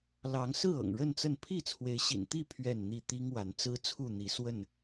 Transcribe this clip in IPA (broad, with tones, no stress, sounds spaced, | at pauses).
l ɑ˨˦ ŋ s ɹ̩˥˨ ɤ̰˨˩ ŋ ɻ ə˥˨ n t͡s ə˥˨ n pʰ i˥˨ t͡sʰ w e˨˦ ɪ̯ ɕ ḭ˨˩ n t̪ i˥˨ pʰ ɥ ɛ˥˨ n n̪ i˥˨ t̪ i˦ ŋ w a˨˦ n t͡s ɹ̩˦ t͡sʰ u˥˨ n̪ i˨˦ s w ə˥˨ n